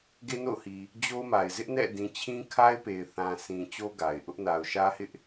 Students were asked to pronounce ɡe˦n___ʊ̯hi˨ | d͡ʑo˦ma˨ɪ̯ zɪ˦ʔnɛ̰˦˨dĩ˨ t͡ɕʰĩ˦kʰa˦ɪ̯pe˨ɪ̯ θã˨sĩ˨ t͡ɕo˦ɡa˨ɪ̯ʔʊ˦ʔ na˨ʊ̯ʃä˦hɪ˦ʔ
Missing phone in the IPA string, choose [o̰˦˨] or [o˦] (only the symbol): o̰˦˨